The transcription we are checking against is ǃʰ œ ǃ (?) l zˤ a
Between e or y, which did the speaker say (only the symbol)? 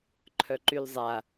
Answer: y